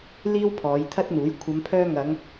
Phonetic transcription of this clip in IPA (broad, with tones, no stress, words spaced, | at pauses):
liː˥wpʰɔː˨˧j t̪ʰɐ˥t̚n̪uː˨˥j kʷʰɐ˨˧mpʰœː˧ ŋɐ˨˧ŋ